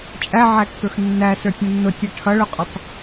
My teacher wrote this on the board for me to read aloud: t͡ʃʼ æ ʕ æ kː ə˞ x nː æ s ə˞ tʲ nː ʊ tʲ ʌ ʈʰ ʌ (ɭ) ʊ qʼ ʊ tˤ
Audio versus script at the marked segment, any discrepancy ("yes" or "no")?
no